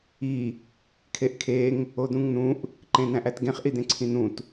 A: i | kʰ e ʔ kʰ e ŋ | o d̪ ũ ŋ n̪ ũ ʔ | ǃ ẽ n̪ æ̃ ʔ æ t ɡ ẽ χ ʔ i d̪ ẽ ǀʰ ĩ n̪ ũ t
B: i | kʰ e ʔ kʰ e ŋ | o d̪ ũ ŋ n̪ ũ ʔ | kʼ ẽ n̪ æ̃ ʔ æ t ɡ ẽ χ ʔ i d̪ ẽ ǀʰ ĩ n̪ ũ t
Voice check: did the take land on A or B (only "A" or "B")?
A